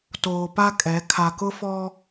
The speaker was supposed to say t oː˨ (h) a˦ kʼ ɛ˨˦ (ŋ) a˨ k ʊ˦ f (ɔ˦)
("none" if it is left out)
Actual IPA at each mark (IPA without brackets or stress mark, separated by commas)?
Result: p, kʰ, ɔ˦